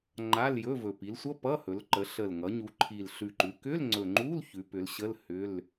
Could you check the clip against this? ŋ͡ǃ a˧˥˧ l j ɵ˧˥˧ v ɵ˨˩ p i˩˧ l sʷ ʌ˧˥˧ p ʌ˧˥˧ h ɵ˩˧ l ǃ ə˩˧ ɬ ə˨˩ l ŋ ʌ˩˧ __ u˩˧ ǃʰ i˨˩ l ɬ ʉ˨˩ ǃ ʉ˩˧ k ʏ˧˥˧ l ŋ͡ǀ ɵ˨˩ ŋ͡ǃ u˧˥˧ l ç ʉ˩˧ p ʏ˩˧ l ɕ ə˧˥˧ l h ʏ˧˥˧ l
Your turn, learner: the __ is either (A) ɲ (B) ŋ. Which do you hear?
A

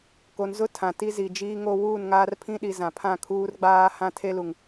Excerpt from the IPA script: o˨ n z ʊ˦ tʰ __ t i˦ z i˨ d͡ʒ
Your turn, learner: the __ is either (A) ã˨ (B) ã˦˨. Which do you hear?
A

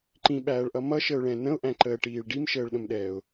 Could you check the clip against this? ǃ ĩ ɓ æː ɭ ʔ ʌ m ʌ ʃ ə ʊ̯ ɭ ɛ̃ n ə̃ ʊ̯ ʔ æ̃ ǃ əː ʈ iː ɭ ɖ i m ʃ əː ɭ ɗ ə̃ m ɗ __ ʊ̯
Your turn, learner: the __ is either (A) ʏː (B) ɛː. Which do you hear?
B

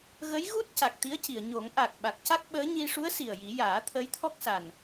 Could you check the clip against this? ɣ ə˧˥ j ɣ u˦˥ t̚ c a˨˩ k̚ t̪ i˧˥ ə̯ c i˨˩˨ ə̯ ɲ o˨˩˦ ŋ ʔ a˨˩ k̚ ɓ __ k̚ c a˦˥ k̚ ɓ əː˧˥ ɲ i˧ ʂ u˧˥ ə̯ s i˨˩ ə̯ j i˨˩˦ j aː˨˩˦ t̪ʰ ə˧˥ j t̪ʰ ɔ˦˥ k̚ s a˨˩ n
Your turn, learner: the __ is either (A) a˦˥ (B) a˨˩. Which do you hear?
B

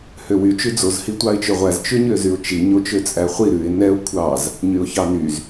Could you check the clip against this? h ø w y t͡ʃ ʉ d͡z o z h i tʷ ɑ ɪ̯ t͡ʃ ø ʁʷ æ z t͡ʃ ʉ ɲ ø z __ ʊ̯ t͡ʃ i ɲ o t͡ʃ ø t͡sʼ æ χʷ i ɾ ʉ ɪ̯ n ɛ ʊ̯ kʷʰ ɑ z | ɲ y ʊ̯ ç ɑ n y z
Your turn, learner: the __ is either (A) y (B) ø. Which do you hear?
A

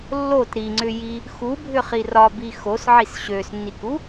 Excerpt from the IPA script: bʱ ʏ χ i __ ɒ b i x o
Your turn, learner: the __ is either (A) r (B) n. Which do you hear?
A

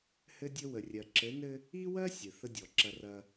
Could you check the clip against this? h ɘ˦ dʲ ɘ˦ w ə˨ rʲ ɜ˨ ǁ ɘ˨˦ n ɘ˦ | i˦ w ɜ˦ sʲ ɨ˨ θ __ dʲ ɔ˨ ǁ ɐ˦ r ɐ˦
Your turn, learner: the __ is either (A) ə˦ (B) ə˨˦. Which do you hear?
A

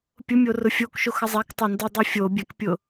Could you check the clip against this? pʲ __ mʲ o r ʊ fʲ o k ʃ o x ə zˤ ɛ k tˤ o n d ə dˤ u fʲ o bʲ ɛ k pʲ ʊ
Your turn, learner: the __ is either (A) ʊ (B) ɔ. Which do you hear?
A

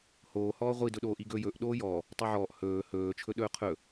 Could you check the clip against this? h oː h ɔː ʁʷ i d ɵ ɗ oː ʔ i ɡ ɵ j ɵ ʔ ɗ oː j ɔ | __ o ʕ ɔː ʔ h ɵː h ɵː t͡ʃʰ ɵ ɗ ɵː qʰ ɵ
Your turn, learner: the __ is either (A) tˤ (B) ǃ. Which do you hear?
A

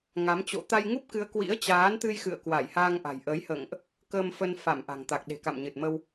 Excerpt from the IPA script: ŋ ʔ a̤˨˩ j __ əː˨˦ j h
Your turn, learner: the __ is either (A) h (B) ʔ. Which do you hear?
B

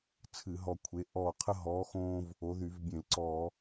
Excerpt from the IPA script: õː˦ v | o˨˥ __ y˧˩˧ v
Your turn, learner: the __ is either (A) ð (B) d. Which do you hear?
A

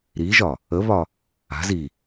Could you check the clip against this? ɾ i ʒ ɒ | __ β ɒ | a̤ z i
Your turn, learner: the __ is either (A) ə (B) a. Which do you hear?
A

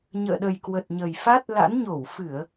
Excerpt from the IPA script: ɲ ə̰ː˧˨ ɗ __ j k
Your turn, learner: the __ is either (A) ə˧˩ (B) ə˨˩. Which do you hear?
B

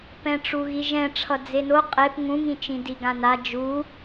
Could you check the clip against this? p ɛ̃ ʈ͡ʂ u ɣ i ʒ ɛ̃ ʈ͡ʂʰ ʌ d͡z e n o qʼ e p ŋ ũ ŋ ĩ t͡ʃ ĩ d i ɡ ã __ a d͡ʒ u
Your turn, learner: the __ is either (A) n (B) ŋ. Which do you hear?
A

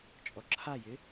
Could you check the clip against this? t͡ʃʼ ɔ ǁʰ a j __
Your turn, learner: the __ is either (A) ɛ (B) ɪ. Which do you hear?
B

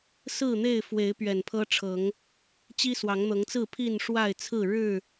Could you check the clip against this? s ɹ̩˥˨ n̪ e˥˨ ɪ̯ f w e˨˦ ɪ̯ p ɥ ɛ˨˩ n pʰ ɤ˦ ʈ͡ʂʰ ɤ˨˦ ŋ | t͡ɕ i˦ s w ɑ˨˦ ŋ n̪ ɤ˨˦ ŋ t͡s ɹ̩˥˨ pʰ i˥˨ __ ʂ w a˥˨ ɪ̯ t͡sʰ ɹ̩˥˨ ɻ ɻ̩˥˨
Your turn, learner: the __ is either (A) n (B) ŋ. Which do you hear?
A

